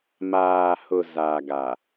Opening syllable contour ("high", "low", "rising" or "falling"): low